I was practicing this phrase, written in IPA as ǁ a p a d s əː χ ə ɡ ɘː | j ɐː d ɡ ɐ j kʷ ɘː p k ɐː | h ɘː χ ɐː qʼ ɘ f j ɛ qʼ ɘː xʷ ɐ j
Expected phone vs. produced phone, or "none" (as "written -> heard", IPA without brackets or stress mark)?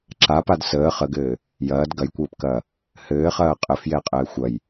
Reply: none